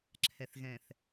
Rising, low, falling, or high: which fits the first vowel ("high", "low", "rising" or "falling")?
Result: low